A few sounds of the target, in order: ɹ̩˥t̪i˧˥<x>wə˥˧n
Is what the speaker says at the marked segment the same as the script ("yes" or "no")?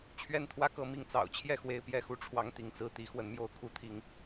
yes